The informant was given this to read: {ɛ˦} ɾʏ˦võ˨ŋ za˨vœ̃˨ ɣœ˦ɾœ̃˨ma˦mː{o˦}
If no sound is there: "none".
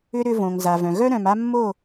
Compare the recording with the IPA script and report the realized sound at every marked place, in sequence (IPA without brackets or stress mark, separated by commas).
ʏ˦, o˦˨